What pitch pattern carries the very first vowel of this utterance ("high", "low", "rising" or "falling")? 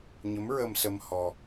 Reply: rising